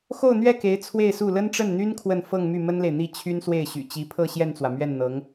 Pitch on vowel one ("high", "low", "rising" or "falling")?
falling